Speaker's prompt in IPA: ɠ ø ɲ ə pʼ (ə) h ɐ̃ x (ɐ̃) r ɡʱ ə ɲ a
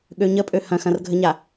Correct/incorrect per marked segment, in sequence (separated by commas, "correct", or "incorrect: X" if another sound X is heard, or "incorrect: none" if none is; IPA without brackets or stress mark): incorrect: ø, correct